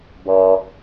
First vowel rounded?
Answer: yes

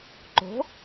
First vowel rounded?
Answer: yes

